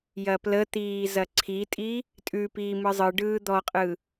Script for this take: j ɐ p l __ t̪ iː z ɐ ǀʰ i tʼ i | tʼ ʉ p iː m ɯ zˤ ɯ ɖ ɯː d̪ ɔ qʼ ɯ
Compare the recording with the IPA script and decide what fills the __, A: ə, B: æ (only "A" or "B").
A